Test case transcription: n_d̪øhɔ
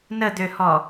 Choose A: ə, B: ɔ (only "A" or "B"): A